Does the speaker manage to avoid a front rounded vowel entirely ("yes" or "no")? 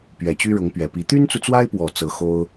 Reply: no